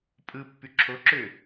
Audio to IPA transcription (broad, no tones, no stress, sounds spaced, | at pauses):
pʼ ɯ pː y ǁʰ o ǁ ø